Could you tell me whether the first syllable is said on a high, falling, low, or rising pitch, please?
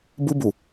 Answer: high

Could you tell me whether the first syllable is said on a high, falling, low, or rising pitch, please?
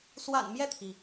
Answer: low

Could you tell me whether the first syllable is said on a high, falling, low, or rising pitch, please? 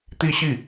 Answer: falling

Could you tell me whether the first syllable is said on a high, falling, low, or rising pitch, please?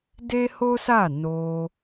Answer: high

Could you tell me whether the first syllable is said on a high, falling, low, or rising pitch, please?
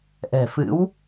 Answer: low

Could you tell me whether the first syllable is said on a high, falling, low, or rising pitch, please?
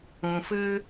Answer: low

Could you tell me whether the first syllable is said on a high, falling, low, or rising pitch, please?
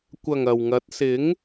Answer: low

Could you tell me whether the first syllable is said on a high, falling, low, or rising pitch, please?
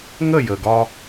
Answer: falling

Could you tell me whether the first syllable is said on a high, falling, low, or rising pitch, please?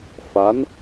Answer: rising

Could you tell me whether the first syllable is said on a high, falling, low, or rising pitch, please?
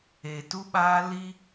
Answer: low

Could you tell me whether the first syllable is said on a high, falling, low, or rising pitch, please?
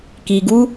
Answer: low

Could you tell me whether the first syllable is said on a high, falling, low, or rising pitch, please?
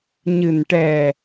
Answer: low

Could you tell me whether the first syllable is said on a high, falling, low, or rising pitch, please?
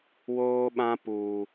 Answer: high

